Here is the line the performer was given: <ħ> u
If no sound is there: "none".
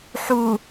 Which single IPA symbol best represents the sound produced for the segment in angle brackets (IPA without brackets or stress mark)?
ħ